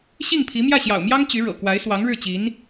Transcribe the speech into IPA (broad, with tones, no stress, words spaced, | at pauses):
ɕi˥˩ŋpʰi˧˥ mjä˥˩ɕjɑ̰˨˩ʊ̯mjɑ˥ŋ t͡ɕy˧˥ɻɤ̰˨˩ kwa˧˥ɪ̯swɑ˧˥ŋ ɻɻ̩˥˩t͡ɕi˧˥n